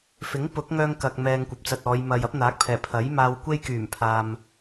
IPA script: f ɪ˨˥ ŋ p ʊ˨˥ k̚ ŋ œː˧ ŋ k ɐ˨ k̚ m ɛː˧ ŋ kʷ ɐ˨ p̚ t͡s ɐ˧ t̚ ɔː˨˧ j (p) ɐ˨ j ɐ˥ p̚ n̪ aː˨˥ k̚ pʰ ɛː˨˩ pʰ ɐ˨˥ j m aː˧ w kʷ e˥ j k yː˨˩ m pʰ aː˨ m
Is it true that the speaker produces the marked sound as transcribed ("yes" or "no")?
no